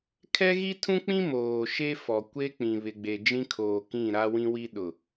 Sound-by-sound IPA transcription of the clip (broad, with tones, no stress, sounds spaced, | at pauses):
kʰ ɛ˦ ɣ i˦ tʰ ũ˦ k͡p ĩ˦ m oː˨ ʃ e˦ f ɔ˨ kʷ e˦ k͡p ĩ˨ β ɪ˨ ɡ͡b e˨ d͡ʒ ĩ˦ kʰ oː˨ k ĩ˦˨ ɾ a˦ w ĩ˦ w i˦ ɗ ʊ˨